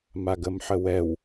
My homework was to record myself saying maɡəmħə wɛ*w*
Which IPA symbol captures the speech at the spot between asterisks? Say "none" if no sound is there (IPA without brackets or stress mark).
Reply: w